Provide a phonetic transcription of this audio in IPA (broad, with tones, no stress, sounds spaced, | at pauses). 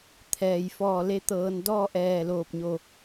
t̪ʰ ɛː˩ j f ɔː˧˩ l e˧˥ t̪ ɤː˩˧ n d ɔː˥˨ ʔ ɛː˧˩ l oː˧˩ p̚ ɲ o˧˩